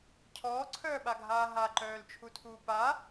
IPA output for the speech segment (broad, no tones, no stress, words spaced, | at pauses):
cʰɔːǀʰœːɓaɡʱaː ɦaǃœːlt͡ʃʰutʰuː pa